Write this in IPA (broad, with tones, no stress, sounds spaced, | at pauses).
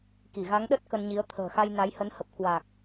k i˧˩ ɣ a˨˦ ŋ ɗ ə˦˥ t̚ k ə˧ n ɲ i˨˦ ə̯ t̪ʰ ə̤ː˨˩ x a˧ j n a˨˦ j h ə˨˦ n h ə˨˩ p̚ k w a˨˩ k̚